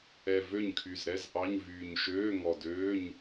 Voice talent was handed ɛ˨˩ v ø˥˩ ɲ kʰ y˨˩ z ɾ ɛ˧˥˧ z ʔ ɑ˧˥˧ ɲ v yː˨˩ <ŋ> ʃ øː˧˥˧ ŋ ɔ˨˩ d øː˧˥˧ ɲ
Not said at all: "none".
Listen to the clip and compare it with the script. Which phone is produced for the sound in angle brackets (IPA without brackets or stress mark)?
ɲ